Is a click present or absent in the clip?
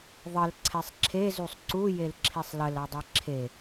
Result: present